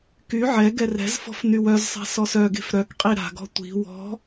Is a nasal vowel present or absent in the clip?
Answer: absent